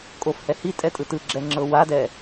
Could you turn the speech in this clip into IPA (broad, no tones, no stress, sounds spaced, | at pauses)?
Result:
kʼ o f h ɛ h i tʼ ɛ tʼ ɯ t ɯ ɡ͡ǁ ɛ ŋ͡ǁ ɤ w a d ɛ